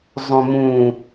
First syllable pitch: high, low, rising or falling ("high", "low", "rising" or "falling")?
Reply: low